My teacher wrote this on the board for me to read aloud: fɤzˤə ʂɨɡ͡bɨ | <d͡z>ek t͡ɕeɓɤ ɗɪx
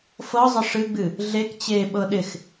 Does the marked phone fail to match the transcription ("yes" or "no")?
yes